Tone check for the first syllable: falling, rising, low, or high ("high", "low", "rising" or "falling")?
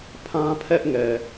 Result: high